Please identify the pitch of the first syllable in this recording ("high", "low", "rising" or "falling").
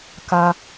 low